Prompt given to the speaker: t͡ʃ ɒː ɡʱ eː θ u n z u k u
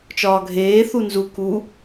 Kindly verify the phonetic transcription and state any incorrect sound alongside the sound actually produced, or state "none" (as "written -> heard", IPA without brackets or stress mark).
none